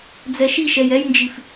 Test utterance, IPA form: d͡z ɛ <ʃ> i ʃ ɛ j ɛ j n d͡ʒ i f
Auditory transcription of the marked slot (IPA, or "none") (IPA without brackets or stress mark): ʃ